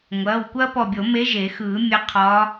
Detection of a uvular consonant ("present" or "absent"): present